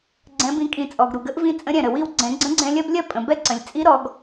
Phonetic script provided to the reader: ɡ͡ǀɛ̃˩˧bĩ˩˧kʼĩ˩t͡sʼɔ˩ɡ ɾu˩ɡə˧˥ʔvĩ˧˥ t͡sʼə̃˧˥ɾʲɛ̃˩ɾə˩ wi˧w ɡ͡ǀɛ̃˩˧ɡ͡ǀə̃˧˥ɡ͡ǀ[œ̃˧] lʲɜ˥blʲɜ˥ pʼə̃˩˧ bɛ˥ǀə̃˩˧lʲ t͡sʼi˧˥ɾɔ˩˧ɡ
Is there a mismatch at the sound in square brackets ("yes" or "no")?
yes